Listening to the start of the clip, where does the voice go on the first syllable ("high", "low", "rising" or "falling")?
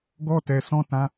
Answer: high